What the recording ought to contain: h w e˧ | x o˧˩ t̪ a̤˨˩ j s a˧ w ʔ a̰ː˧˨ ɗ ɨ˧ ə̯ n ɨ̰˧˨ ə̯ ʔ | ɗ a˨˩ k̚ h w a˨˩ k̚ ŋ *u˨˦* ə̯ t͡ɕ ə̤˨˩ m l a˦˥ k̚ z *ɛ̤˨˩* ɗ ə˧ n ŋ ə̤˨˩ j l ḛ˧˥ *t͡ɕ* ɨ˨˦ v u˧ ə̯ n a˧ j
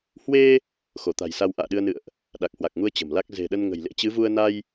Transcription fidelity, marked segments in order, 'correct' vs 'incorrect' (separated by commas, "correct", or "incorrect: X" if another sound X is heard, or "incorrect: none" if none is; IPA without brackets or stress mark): incorrect: u˧, incorrect: e̤˨˩, correct